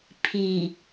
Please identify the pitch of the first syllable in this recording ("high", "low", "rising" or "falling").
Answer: low